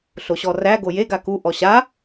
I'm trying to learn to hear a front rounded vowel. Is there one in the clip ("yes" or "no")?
no